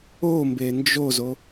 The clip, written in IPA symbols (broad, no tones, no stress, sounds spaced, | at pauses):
o m b e n d͡ʒ o z o